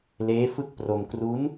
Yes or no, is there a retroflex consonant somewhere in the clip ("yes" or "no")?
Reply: no